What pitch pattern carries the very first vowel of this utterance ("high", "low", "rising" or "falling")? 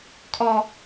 high